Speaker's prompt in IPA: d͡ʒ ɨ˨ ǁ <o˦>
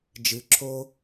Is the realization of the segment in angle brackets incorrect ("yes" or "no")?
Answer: no